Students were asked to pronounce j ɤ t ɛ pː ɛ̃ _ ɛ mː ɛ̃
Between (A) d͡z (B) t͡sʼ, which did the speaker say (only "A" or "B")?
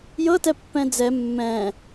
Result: A